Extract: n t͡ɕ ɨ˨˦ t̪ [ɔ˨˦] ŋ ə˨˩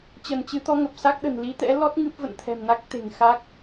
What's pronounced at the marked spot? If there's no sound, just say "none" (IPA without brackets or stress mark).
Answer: ɔ˨˦